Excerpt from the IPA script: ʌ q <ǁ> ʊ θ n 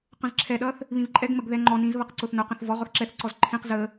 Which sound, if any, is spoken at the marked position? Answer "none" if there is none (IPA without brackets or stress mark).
ǀ